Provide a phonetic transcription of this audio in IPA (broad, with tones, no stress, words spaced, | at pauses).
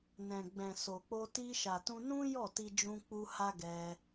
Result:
nɛ̃˨ɡ͡bɛ̃˨so˨k͡po˧ ti˧ʃa˨tũ˧nũ˦ jɔ˦˨ti˧d͡ʒũ˧ k͡pu˧ ha˦ɡɛ˧